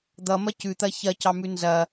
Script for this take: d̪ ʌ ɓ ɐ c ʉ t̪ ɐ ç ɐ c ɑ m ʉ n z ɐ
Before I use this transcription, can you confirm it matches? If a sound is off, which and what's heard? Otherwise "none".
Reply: ɓ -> m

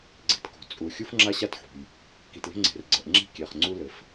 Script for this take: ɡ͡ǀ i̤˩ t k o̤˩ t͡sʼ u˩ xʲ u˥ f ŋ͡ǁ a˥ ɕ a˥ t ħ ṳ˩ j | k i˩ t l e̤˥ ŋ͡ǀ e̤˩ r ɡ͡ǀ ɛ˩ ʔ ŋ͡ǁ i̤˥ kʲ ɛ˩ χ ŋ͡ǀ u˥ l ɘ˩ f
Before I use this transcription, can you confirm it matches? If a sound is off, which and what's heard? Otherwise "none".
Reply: none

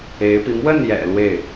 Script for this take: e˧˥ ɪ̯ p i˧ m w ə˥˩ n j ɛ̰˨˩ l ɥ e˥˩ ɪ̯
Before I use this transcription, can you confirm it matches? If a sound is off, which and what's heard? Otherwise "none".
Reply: ɥ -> w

